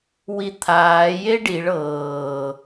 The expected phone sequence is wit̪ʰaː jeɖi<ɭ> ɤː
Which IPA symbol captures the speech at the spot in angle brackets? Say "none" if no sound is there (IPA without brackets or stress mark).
ɭ